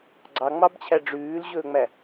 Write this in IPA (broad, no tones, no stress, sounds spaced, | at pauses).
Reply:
ɡ͡ǀ ɑ ŋ͡m ɑ b t͡ɕʰ æ ɖ͡ʐ ʉː l ʑ ɵː ŋ͡m æ